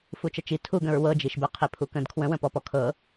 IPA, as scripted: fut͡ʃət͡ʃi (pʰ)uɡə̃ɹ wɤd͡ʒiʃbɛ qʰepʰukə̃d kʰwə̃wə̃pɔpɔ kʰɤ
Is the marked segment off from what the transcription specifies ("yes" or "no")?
yes